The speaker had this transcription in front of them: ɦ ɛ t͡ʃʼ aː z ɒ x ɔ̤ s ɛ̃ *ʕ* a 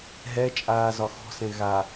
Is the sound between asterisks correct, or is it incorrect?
incorrect